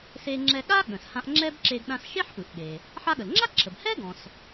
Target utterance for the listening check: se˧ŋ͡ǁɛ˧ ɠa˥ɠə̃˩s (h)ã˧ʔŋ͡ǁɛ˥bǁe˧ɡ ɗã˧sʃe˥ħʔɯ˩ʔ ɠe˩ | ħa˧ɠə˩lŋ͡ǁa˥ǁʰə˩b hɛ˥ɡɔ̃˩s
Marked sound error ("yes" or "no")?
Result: no